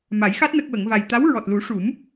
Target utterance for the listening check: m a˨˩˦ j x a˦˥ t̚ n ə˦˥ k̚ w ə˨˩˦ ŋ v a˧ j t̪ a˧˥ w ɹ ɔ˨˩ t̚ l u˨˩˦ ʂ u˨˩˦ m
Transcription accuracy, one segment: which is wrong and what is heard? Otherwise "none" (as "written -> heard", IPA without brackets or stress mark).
none